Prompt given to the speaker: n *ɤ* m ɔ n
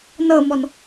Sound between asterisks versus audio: correct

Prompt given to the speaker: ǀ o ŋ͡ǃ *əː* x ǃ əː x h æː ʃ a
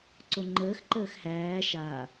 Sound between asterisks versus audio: correct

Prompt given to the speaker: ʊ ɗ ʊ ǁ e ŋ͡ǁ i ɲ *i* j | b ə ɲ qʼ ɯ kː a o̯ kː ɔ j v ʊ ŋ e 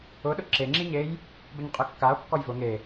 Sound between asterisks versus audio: incorrect: e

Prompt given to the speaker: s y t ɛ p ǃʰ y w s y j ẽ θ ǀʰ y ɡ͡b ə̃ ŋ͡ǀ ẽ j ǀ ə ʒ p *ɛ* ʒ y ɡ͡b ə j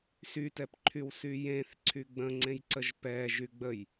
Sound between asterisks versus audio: correct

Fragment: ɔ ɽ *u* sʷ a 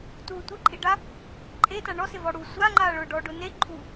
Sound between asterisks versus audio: correct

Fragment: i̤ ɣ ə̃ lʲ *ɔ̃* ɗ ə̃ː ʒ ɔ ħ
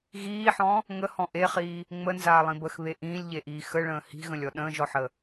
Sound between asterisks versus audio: incorrect: ɔ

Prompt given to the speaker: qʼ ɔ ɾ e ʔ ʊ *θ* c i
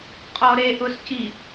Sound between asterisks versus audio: incorrect: s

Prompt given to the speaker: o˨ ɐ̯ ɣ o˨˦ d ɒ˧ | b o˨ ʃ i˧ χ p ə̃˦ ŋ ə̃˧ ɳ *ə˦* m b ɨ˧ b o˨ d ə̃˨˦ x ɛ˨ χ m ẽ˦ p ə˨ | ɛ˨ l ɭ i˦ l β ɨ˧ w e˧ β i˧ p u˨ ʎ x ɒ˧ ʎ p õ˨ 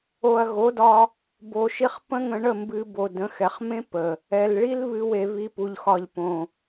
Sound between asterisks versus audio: incorrect: ə˦˨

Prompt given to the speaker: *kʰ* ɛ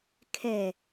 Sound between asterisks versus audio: correct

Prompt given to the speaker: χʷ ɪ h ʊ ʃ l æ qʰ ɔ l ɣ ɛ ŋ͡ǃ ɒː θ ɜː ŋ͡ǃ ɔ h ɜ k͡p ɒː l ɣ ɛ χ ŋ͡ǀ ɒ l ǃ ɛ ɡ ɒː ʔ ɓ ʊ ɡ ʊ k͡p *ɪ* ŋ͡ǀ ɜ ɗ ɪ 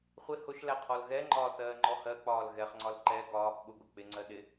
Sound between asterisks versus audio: correct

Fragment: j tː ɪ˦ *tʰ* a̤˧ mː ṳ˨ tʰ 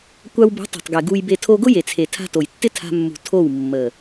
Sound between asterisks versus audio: correct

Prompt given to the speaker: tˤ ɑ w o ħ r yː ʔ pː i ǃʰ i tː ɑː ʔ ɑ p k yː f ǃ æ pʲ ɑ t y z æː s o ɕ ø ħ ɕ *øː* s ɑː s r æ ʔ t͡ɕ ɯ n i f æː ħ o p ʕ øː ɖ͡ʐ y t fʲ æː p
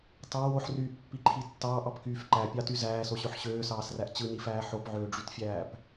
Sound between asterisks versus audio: correct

